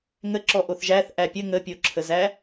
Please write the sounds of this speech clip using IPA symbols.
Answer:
ŋ ə ǁ ɔ ʔ o θ ʒ æ θ ʔ æ pʲ ə ŋ ə pʲ o ǁʰ ə z æ

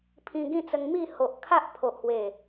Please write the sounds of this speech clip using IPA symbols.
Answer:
pʰ ĩ˧ ɡ ĩ˥˧ t͡s ə˧ ŋ m i˥˧ h o˨ ʔ kʰ a˦ ʔ pʰ o˨ ʔ h w e˨˩

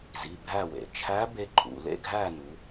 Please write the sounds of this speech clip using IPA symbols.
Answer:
z i˩˧˩ bʱ æ˥˨ w ḛ˩ t͡ʃʰ æ˧˥ b e˧ ǃʼ ṵ˩ l ḛ˥˨ ɡʱ æ˥˨ n u˩˧

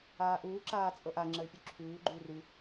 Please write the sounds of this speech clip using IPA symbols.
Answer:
aː ʔ uː ǁ aː t͡sʼ ɤ ʔ a ŋ͡ǁ ə y̯ pʲ ʉ ǁʰ ʉː ɡ͡ǃ ʉː r ʉ

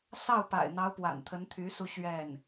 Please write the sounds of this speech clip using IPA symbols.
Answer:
s ɑ˥˩ ʊ̯ p a̰˨˩ ɪ̯ n̪ ɑ˧˥ ʊ̯ p w a̰˨˩ n t̪ʰ ə˧˥ n t̪ʰ y˧˥ s u˧ ɕ ɥ ɛ˥˩ n

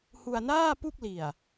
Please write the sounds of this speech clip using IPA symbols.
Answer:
h u˧ a̯ n aː˥˩ p u˥˩ k̚ l i˨˩ a̯

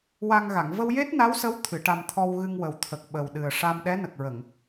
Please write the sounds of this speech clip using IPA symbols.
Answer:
w a˧ ŋ ɣ a˨˩˨ ŋ v ə˧ w j e˦˥ t̚ n a˧˥ w s ə˧˥ w t̪ʰ ɨ˨˩˦ ʈ a˧ m t̪ʰ ɔ˧ w ɣ ɨ˧ ŋ w ə˨˩ w t̪ʰ ə˨˩ k̚ ɓ ə˨˩ w ɗ ɨ˨˩ ə̯ ʂ a˧ m ɗ ɛ˧˥ n ə˨˩ k̚ ɹ ə˨˩˨ ŋ

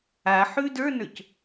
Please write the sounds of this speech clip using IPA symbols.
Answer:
a ħ ʉ d ə˞ n ə˞ c

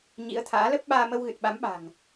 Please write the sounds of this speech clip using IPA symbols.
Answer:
ɲ ḭ˧˥ ə̯ t̪ʰ a̰ː˧˥ l ə˦˥ p̚ ɓ aː˧ m ə˧ w ɣ ɨ˨˩ t̚ ɓ a˨˦ m ɓ a̤˨˩ ŋ

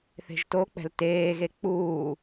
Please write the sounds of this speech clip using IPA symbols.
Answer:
θ e̤ ʒ t o k͡p ɛ̤ l t eː ɣ e k͡p uː

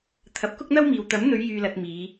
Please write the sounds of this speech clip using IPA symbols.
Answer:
t̪ʰ ɐ˨˥ p̚ k ʊ˥ k̚ n̪ ɐ˥ w m iː˨ w t̪ ɐ˨˥ m n̪ ɵ˨˧ ɥ j yː˨ l ɐ˨ t̚ m iː˨˧

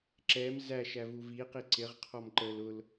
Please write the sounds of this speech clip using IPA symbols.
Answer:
ǁ ɛ m z æ ʃ æ v u v i q i ǀ ɪ ʁ qʰ ɔ m ǃ ə l ʊ l

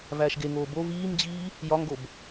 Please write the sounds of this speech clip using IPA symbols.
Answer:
v æː ʃ ɡ e ŋ oː b o v iː m d͡ʑ iː | j ɒ ŋ ɡ o b

